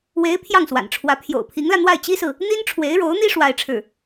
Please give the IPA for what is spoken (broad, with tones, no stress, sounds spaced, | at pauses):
w e˧˥ ɪ̯ pʰ j ɑ˥˩ ŋ s w a̰˨˩ n ʈ͡ʂʰ w ä˧˥ pʰ j o̰˨˩ ʊ̯ pʰ i˧˥ ŋ l ä˧ n̪ w a˥˩ ɪ̯ t͡ɕ i˥ s ɹ̩˨ | n̪ i˥ n ʈ͡ʂʰ w e˧˥ ɪ̯ ɻ o˧˥ ʊ̯ n̪ i˥ ʂ w a˥ ɪ̯ ʈ͡ʂʰ ɻ̩˥˩